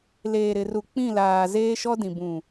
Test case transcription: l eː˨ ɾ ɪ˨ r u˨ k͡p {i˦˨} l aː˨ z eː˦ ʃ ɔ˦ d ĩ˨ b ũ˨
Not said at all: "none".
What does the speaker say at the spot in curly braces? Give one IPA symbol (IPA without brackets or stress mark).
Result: ĩ˦˨